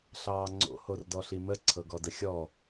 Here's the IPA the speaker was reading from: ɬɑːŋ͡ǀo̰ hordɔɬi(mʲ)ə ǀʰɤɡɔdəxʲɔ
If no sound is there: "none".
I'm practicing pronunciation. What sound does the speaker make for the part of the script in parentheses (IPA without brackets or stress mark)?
m